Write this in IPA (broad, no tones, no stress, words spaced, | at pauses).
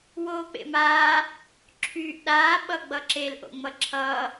woːk͡pḛmaː | ǁʰyːʔɗaː ɓʌɡ͡bʌǁel ʔo̰ŋ͡mʌǁʰʌː